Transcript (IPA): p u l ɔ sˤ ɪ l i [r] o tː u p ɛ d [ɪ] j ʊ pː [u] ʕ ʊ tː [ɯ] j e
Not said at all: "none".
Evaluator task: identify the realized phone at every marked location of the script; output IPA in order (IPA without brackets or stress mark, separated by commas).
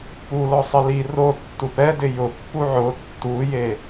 r, ɪ, u, u